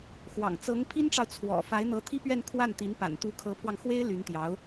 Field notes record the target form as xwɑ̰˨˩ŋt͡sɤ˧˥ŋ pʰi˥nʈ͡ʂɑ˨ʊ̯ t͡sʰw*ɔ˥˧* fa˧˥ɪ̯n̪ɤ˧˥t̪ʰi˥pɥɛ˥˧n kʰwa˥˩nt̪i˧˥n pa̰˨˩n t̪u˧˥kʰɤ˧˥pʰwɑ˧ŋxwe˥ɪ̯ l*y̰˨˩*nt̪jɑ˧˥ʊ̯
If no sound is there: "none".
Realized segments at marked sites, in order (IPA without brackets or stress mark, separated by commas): ɔ̰˨˩, y˧˥